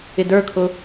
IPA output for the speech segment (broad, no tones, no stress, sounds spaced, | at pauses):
ɪ d ə˞ kʰ ʊ